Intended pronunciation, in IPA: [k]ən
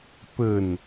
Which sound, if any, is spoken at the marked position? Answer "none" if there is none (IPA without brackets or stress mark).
p